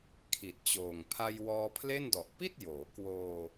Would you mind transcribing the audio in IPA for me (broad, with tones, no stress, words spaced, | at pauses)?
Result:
kʰi˨˩t̚t͡ɕoː˨˩ŋ pʰa˧jwɔː˧pʰle˥˩n dɔ˨˩ʔpi˥˩t̚joː˩˦ kwoː˧